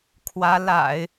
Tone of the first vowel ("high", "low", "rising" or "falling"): rising